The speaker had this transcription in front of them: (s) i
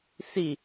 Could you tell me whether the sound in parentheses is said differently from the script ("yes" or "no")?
no